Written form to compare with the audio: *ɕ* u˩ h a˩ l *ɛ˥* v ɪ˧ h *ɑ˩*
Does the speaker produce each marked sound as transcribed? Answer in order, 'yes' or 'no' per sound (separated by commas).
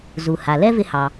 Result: no, yes, yes